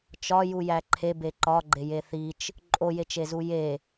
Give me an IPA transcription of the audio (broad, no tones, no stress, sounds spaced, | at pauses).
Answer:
t͡ʃ ɒ j u j æ ǃʰ e b e ǃ ɒ ɡ͡ǃ e j e θ i t͡ʃ | ǃʼ o j e t͡ʃ e z u j e